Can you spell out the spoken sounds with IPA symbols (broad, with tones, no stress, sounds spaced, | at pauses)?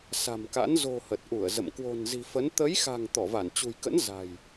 s a̤˨˩ m k a̰˧˥ n z o̤˨˩ h ə˨˩ t̚ ʔ u˧˩ ə̯ z ə̰˧˨ m k w o̤˨˩ n z i̤˨˩ f ə˨˦ n t̪ ə˨˦ j x a̤˨˩ ŋ t̪ ɔ˧˩ v a˧˩ n t͡ɕ ṳ˨˩ j k ə̰˧˥ n z a̤˨˩ j